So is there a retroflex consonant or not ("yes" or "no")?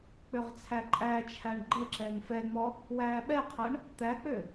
yes